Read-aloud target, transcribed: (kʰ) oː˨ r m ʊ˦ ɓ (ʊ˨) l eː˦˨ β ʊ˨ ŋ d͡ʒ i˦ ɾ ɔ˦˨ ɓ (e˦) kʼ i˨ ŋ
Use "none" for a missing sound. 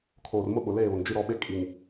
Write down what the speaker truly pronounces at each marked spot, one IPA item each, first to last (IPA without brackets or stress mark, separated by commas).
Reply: kʰ, ʊ˨, e˦